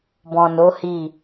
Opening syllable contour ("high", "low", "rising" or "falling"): low